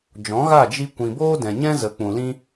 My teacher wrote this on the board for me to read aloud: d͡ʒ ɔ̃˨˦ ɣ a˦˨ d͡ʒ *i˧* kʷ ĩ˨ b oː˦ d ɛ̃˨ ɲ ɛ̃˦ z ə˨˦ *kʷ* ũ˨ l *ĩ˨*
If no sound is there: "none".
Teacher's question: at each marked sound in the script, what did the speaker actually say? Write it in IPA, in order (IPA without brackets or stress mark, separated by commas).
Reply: i˧, k͡p, ĩ˦